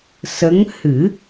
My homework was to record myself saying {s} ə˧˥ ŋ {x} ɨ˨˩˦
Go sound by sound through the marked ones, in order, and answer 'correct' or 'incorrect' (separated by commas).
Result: correct, incorrect